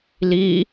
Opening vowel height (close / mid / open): close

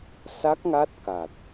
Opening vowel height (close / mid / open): open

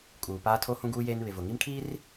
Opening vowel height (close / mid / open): close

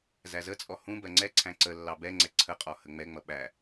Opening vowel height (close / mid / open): open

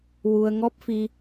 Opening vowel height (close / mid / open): close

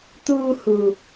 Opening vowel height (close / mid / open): close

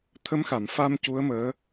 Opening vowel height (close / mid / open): mid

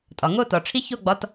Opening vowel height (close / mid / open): open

